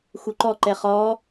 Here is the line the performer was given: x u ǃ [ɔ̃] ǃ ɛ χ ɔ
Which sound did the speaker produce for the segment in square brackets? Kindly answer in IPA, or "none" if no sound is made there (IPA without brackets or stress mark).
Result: ɔ